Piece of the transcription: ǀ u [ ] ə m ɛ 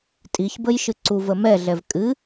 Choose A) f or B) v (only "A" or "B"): B